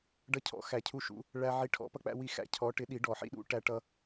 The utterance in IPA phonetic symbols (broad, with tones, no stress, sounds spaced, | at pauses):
ɖ ʌ˧ cʰ ɔ̰˨˥ x æ˨˩˦ cʰ u˧ ʃ ṵ˨˩˦ | ɭ æ˧ ʕ i˨˥ ʈʰ ɔ̰˨˩˦ p ʌ˧ k͡p æ̰˧ w i˧ x æ̰˧ cʰ ɔ˨˥ ʈ ɪ˨˥ ɗ i˨˩˦ ɖ ɔ˨˩˦ ħ ḭ˧ ɗ ṵ˨˥ ʈ æ˧ ʈ ʌ˧